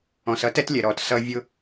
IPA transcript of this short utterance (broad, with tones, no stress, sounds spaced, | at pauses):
ɔ̃˨ s ʌ˦ t ɛ˦ t lʲ ɛ˨ ɾ ɔ˨ t s ʌ˦ vʲ ʊ˦